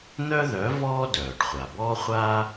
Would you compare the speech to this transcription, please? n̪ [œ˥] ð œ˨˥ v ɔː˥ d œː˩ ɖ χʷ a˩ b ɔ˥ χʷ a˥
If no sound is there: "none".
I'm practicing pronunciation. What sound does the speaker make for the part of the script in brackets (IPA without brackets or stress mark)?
œ˥